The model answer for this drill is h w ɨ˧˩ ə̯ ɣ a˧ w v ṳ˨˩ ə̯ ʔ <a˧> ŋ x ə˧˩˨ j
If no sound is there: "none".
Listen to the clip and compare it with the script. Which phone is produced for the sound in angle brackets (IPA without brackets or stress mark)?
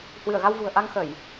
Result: a˧